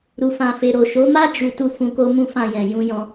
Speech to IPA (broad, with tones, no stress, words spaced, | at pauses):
ɾu˨fã˨fe˨ ɾo˨ʃo˨˦ma˦ d͡ʒu˦ tu˦˨ fũ˧ko˦ mũ˦fã˦˨jɛ̃˨ jũ˧jɔ̃˧